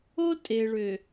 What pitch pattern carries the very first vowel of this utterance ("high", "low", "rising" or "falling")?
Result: high